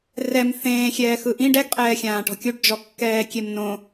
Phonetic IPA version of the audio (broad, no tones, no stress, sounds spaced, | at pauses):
r ɛ m θ ẽː xʲ ɛː x ɯ ʔ ĩ ɖ ɛ ɡ qʼ ɛː xʲ ãː ʈ ɔ̤ kʲ u ɖ d͡ʒ ɔ kː ɛː kʲ e m n õ